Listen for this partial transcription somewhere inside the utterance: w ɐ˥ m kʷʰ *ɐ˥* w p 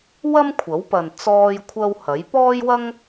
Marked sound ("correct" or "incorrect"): incorrect